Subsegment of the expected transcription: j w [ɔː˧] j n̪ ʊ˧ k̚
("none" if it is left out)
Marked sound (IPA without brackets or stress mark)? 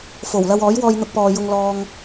ɔː˧